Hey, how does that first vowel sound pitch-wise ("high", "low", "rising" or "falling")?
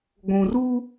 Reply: low